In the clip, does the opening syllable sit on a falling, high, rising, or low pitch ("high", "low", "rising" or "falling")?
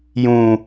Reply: low